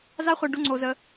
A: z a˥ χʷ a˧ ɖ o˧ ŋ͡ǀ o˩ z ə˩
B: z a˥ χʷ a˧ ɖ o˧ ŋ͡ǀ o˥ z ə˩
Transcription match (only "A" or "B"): A